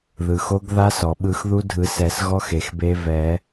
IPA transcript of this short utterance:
ð ɯ˩ x o˧˥ ɡ ð a˧˥ s ɔ˩ ɓ ɯ˨˩˦ x ð u˧˥ dʱ ɯ˨˩˦ s ɛ˨˩˦ s ɣ ɔ˧˥ x e˩ x b e˧˥ v ɛ˨˩˦

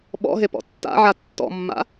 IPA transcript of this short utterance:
ɓ ɔ̰ ɦ e p ɔ̰ tː a̰ ʕ a tː ɔ̰ mː a̰

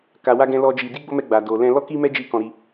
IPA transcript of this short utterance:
k a˧ w a˦ ɡ ɛ̃˦ l ɔ˦ d͡ʒ i˧ d i˦ ɡ͡b o˦ m ɛ˧ ɡ͡b a˨ d o˨ l ɛ̃˧ l ɔ˦ k i˦ m ɛ˦ d͡ʒ i˦˨ k ɔ̃˧ ɾ i˧

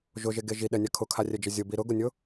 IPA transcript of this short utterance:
ʒ ʊ ʒ e ɡ e ʒ i ɗ ɛ nʲ a kʰ ʊ kʰ a rʲ ɛ d͡ʒ ə zʲ ʊ b i ɾ ʊ ɡ ʊ nʲ ʊ

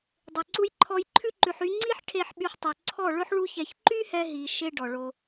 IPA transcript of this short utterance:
dˤ e˨ ǀ u˧ j ǃʰ ɔ˧ j ǃʰ ʉ˦ ǃ ʉ˧ ħ y˦ ŋ͡ǀ i˦ ħ ʈʰ e˧ ħ ɓ y˧ ħ tˤ ø˨ ǀʰ ɔ˦˨ ɭ ɵ˦ ħ ɭ u˦ ç ɛ˧ ç ǃ y˦ h ɛ˧ ɦ i˨ ʃ e˧ ɖ ɔ˨ ɭ o˧

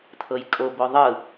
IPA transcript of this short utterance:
t̪ʰ ɤ j kʼ o b o ðˤ ɯ

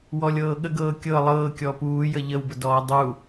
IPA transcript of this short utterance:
w ɔ lʲ ɤː ɠ ə ɡ ɤː kʲ ɤ lˠ ɤː kʲ ɔ p uː j ə ʎ ə w b ə d ɔː dˤ u

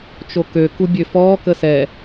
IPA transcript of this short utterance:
t͡ʃ o k ø k u bʲ ø f ɔː k ə s ɛ

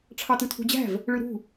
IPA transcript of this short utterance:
ʈ͡ʂʰ ɑ t ɯ tʰ ṳ d͡ʑ æ̤ v | ɭ ɯ ɾ ṳ

